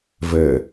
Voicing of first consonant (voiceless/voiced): voiced